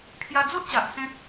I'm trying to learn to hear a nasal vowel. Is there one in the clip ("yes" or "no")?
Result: yes